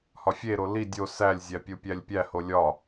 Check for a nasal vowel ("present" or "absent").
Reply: absent